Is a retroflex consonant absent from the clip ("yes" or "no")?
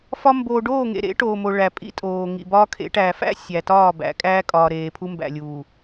no